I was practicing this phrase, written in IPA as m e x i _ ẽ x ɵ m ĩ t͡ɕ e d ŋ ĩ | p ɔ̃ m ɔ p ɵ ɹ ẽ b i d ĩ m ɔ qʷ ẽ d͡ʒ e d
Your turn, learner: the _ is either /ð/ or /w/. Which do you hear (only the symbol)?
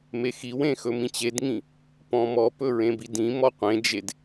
w